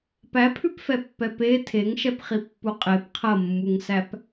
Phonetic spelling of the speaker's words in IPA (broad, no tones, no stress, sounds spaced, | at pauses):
p æ pʰ ʉ p f ɛ pː ɛ p e tʰ e ŋ ʃ ɛ p χ i pː u qʼ e p qʰ ɐ mː u ŋ s æ p